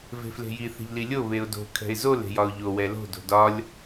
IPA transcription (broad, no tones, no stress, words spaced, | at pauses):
ve̤fle̤ji θe̤ʎlilʲo βeʊ̯do̤ kʰɛ̤ɪ̯zol e̤jɒʊ̯ʎo wɛlo̤ do̤dɒlʲ